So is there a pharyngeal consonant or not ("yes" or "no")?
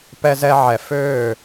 yes